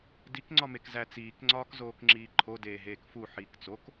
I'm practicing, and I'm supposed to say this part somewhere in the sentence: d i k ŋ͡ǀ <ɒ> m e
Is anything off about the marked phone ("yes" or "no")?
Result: no